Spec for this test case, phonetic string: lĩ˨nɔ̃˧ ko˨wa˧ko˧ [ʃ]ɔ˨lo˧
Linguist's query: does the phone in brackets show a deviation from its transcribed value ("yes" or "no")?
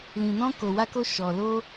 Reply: no